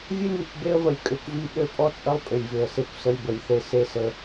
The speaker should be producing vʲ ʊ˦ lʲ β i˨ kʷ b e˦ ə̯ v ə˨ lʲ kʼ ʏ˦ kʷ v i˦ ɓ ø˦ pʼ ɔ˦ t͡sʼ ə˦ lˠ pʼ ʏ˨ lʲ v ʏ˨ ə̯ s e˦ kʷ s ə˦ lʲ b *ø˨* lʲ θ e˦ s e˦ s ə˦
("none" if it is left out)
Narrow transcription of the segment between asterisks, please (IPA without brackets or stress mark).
ə˨